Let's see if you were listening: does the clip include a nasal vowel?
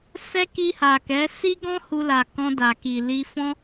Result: yes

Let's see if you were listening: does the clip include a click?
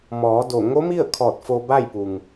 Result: no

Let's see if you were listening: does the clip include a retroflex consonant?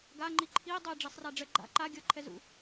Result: yes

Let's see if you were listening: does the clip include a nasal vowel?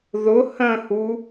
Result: yes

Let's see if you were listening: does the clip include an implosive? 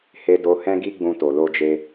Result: no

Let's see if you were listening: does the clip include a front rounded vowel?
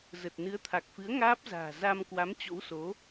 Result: no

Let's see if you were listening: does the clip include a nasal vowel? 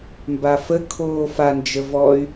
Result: no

